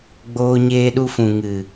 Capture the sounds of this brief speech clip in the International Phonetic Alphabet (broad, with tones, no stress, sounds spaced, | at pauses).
ɡ͡b oː˧ ɲ eː˧ ɗ u˧ f ũ˨ ŋ ɨ˨